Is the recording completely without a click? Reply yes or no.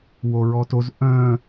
yes